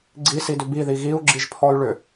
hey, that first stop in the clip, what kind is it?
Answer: click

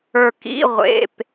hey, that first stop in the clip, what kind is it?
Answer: plain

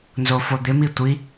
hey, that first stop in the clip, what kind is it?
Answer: plain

